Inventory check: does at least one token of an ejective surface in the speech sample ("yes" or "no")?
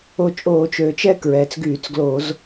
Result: yes